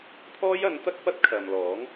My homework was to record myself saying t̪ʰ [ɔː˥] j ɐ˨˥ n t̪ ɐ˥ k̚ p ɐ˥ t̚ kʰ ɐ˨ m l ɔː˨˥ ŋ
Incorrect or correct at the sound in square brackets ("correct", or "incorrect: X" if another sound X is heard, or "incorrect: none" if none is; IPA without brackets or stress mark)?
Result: correct